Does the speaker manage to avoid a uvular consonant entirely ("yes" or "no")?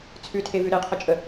no